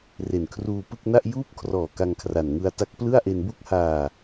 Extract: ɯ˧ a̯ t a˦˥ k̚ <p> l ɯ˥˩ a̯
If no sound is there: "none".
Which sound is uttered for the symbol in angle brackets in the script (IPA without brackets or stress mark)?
p